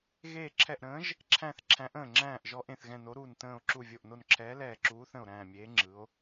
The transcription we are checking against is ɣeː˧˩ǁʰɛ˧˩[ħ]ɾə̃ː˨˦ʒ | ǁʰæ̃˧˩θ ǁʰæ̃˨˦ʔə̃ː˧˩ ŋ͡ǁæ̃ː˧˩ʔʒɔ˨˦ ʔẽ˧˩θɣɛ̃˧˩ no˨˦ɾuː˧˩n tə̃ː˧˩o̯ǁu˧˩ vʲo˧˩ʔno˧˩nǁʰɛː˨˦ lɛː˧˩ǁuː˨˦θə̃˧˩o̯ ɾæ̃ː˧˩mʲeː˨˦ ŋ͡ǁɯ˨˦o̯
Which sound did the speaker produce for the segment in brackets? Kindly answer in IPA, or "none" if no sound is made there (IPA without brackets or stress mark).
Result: ʔ